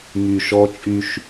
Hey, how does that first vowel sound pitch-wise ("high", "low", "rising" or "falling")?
low